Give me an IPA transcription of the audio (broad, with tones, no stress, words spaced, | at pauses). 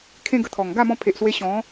kʰẽ˦ɡə˧t̪ʰɔ˨˩ŋ ɡa˥˧mɔ̃˧pʰe˨ʔswe˧ ɕɔ̃˨˦